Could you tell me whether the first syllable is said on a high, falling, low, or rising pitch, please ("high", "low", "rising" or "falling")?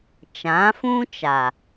rising